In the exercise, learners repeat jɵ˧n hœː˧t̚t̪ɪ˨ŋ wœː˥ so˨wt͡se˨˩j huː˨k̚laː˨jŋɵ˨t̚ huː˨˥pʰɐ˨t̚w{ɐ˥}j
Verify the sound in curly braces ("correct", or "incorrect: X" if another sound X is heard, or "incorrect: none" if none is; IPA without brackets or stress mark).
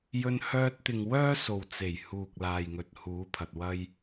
correct